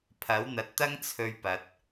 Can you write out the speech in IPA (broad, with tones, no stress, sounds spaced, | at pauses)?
pʰ ɐ˨˥ w n̪ ɐ˨ t̚ t̪ ɐ˥ ŋ t͡sʰ ɵ˧ ɥ p ɐ˨ t̚